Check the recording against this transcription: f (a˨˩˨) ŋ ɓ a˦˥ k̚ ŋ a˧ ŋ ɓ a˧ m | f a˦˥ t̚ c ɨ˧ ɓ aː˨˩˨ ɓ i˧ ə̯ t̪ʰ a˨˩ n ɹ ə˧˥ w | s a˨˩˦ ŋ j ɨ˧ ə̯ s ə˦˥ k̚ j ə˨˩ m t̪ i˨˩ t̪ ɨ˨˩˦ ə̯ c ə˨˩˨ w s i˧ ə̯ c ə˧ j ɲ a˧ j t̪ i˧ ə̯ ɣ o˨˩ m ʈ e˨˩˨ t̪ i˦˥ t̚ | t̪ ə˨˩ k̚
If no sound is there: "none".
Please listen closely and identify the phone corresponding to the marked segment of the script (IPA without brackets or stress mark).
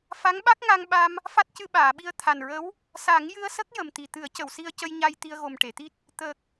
a˧˥